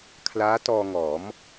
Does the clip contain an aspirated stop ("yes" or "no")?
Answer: yes